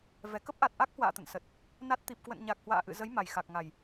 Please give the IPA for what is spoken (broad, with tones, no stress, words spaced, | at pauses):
vɛ˨˩kə˦˥p̚ʔa˨˩t̚ ʔa˦˥k̚hwa̰ː˧˨ t̪ə̰˧˨nsə˨˩t̚ | na˦˥t̚ t̪i˨˩p̚kwə̰˧˨nɲa˨˩k̚ hwa̰ː˧˨ʔɨ̰˧˨zə˨˦j ma˨˩j xa˨˩k̚ŋa˨˩j